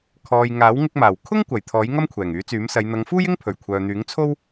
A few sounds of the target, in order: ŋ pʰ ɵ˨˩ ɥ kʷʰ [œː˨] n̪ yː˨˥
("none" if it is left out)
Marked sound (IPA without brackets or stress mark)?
œː˨